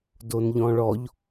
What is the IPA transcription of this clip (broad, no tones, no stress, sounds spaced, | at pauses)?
d o n ʎ ɔ̃ ɭ ɔ ʎ